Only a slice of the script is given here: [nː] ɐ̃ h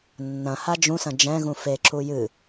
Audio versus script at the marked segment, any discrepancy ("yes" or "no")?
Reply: no